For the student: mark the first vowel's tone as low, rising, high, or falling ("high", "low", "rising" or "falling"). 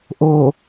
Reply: low